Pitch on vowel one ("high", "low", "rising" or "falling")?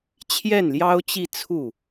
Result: falling